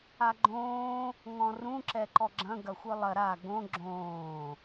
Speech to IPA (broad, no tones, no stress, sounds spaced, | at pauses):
a ɡ͡ǃ õː | ŋ ɔ̃ r ũ ǁ ɛ ǃ ɔ ɡ͡ǁ ɐ̃ ɡ ɐ xʷ ɯ lˠ ɐ ɾ a ɡ õ ɡ͡ǁ õː